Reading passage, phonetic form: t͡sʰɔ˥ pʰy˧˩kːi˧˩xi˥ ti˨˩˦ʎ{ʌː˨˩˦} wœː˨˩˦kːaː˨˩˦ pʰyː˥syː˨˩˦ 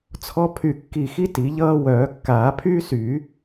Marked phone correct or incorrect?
incorrect